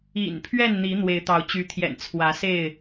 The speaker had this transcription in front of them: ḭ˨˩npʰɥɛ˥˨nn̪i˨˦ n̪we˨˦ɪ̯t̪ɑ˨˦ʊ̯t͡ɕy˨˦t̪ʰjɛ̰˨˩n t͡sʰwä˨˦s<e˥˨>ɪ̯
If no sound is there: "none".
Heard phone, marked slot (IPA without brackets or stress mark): e˥˨